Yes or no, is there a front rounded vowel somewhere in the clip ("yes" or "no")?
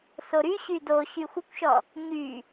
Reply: yes